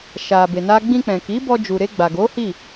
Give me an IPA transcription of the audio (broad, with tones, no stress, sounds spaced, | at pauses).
ʃ a˧ b e˧ n a˦ ɡ͡b ĩ˧ k͡p ɛ̃˨ k i˨˦ b ɔ˧ d͡ʒ u˨ ɾ e˧ ɡ͡b a˨ ɡ o˨˦ h i˦˨